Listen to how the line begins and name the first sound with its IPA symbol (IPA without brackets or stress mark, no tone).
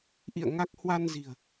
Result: ʔ